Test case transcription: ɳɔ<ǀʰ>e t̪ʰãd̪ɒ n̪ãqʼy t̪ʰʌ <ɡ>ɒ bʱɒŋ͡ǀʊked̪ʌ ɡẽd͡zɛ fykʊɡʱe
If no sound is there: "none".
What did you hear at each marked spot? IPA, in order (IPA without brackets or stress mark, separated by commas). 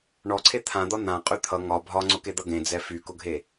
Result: ǀʰ, ŋ